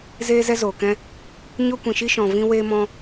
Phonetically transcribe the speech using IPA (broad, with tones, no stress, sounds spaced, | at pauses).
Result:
z eː˦ z ɛ˦ z oː˨ k ɛ̃˦ | ɲ o˦ kʷ ĩ˨ ʃ i˦ ʃ ɔ̃˨ v ĩ˦ w eː˦ m ɔ̃˦